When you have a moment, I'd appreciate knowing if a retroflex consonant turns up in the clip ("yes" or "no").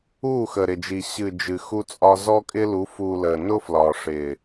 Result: yes